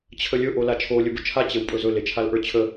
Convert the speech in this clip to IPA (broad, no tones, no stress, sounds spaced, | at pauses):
t͡ɕʰ ə lʲ ɵ ʔ o l a t͡ʃʰ o lʲ ɵ b ʊ t͡ʃʰ a t͡ɕ e w pʼ ɵ z ɵ l e t͡ʃʰ a l ʔ ə˞ t͡ɕʰ ə